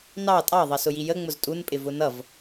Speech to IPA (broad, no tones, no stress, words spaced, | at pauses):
nɑ tʼɑðˤʌsʊji jəŋ͡mʊz tʼunpʼɪvʊ nʌv